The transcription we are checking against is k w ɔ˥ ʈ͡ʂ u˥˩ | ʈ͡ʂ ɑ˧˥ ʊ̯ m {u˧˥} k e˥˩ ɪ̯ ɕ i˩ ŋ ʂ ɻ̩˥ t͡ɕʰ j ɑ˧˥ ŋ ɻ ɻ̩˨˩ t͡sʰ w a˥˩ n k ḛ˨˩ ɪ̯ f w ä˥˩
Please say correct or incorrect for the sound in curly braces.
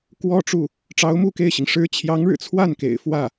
incorrect